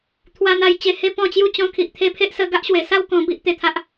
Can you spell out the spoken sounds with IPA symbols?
t̪ʰ w a˧ n̪ a˧ j t͡ɕ e˧ h e˥˧ p ɔ̃˥˧ t͡ɕ j u˦ t͡ɕ ɔ̃˧ kʰ i˨ ʔ t̪ʰ e˦ pʰ e˦ ʔ s ə˧ ɡ a˦ ʔ ɕ w e˨˩ s a˥˧ w k ɔ̃˧ b i˦ ʔ t̪ e˧ t̪ʰ a˦ ʔ

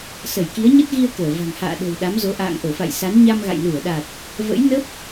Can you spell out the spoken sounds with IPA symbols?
s ə˧˩ j k i˨˦ ə̯ ɲ ə˦˥ t̚ ɣ i˧ ə̯ k əː˧˩ v a̤˨˩ ŋ h a̰ː˧˨ ɗ o̤˨˩ w ɗ a˨˦ m z o˨˦ ʔ a̰ː˧˨ ŋ ʔ o˧˩ f a̰˧˨ j s a˨˦ n ɲ a˧ m ɣ a̰˧˨ j l u˧˩ ə̯ ɗ a˨˩ t̚ | v ə̰˧˥ j n ə˦˥ p̚

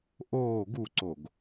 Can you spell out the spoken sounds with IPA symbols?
ʔ oː ɡ u ǀ o ɡ

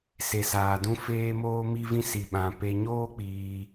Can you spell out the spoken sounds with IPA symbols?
s e˨ s aː˨ d ũ˧ f eː˦ m oː˦ m i˦ v ĩ˦ s i˧ ɓ ã˧ p e˧ ɲ oː˦ k͡p iː˧

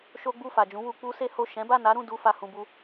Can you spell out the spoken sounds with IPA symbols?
ʃ o˦ ɡ͡b u˦˨ f a˨ d͡ʒ ũ˨˦ w u˧ k͡p u˦ s e˦ h o˦˨ ʃ ɛ̃˨˦ b a˦˨ n a˨˦ ɾ ũ˦˨ d u˧ f a˨ h ũ˨ b u˧

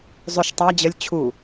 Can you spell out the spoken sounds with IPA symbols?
zˤ ø ʃ tˤ æ d͡ʑ ə lʲ t͡ɕʰ u

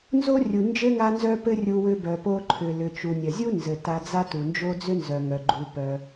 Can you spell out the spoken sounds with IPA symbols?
n z o˥ rʲ u˩ n d͡ʒ ɘ˥ ŋ a˥ n z œ˥ p ɘ˥ rʲ u˧ w ʏ˧ b œ˩ p o˧ ǃʰ ʏ˩ l ʏ˩ t͡ʃ u˩ nʲ œ˩ zʲ u˥ n z ɘ˩ t a˧ d͡z a˥ t u˩ n d͡ʒ o˥ d͡z ʏ˥ n z œ˩ ŋ œ˩ ɡ͡ǃ u˩ p œ˩

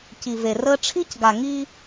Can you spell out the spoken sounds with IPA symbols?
c i˨ v e˨ r əː˦ ʈ͡ʂʰ i˦ c ɡ a˨ ŋ i˦

